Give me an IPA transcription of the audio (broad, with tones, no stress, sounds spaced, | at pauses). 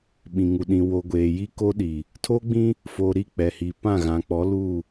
ɓ ĩ˨ ŋ u˨ ɗ ĩ˨ w o˨ ɡʷ eː˨ j i˦ k o˦ ɗ i˨ | tʰ o˦ ɡ͡b ĩ˦ | f o˨ ɾ i˦˨ k͡p ɛ˨ h i˨ p ã˦˨ ɣ ã˨ k͡p ɔ˨˦ l uː˦˨